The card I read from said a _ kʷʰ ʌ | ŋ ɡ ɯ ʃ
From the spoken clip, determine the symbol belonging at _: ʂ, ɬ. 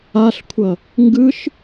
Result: ɬ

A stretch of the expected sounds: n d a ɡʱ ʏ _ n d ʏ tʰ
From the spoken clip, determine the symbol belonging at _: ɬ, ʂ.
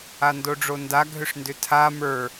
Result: ʂ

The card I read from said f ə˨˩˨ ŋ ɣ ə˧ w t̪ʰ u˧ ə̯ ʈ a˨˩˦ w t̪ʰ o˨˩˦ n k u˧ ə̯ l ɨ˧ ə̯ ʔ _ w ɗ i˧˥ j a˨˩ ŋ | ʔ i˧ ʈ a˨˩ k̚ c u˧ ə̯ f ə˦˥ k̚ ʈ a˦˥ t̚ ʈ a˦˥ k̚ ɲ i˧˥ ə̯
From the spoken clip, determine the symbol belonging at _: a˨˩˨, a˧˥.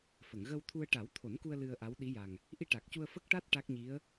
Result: a˧˥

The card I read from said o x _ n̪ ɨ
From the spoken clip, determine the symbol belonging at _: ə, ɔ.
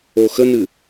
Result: ə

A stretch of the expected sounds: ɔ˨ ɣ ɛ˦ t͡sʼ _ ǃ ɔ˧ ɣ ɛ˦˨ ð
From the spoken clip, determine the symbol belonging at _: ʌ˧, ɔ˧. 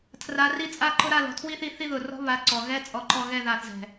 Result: ɔ˧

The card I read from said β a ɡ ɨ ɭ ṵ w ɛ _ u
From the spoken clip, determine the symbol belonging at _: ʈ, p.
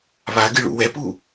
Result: p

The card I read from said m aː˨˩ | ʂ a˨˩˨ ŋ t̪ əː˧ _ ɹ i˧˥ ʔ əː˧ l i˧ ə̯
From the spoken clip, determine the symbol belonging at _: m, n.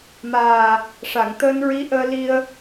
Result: n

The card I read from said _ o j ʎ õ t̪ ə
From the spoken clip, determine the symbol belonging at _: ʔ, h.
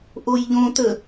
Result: ʔ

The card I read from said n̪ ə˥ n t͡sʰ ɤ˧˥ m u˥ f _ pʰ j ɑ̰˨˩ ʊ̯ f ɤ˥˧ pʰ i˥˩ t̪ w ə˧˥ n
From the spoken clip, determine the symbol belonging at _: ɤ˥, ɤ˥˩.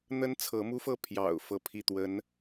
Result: ɤ˥˩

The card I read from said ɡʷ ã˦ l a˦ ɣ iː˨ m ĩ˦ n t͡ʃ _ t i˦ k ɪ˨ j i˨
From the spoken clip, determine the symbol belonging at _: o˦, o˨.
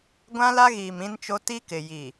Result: o˦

